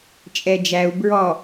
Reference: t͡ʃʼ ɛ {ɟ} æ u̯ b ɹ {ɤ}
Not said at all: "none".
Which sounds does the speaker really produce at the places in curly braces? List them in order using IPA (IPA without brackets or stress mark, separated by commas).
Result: d͡ʒ, ɔ